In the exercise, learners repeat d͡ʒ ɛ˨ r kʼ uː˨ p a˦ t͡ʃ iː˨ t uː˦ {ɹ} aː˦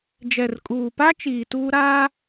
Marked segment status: incorrect: ɾ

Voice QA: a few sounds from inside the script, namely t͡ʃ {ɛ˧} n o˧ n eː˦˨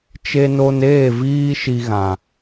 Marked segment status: incorrect: e˧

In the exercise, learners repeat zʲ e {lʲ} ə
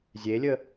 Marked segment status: correct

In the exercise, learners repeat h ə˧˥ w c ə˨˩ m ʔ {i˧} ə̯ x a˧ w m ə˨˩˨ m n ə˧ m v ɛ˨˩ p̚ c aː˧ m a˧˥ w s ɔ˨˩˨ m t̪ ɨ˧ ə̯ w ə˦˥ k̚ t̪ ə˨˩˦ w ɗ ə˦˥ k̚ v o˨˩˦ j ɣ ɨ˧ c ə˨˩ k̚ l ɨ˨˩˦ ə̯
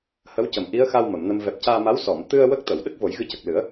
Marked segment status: incorrect: i˧˥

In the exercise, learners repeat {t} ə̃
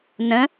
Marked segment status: incorrect: n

